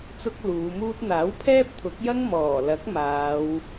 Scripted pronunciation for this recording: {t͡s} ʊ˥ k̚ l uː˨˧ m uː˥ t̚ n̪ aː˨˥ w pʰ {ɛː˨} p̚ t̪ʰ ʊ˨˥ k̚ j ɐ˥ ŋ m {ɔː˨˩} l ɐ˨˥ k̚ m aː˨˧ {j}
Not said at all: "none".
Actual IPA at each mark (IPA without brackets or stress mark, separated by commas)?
t͡s, ɛː˥, ɔː˨˩, w